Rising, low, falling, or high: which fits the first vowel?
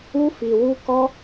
high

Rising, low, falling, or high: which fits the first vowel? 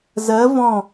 rising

